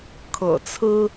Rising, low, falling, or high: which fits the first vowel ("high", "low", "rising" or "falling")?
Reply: low